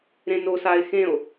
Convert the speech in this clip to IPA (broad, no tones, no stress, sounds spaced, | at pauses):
ɾ ẽ n o s a e̯ x ẽ o̯